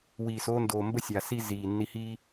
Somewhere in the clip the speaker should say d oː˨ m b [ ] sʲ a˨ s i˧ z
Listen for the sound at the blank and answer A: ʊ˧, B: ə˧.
B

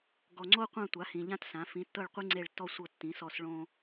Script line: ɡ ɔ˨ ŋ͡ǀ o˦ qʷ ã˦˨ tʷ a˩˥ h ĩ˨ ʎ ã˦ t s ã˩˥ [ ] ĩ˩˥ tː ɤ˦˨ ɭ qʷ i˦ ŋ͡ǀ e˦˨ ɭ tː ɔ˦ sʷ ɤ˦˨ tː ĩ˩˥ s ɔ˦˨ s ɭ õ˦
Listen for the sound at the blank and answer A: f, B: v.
A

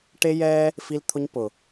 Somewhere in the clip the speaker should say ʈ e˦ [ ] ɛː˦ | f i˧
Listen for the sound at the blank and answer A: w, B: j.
B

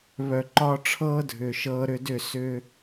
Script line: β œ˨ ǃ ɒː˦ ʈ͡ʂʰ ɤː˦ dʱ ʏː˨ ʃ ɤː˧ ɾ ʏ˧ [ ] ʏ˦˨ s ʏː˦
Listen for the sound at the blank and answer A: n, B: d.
B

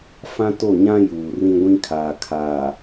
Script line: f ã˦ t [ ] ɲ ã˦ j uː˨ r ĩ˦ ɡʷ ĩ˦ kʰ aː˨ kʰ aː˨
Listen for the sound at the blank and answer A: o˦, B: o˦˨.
B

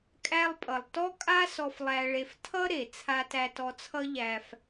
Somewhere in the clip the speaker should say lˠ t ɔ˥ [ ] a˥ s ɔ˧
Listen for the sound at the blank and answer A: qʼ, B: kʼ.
B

